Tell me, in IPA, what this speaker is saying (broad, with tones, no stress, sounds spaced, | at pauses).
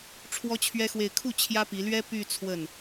ʈ͡ʂʰ w ɔ˥ t͡ɕʰ ɥ ɛ˥ x w e˥˧ ɪ̯ kʰ u˥˩ t͡ɕʰ j ä˥ p i˧˥ l ɥ ɛ˥ p y˥˧ t͡sʰ w ə˥˩ n